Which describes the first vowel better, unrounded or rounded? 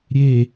unrounded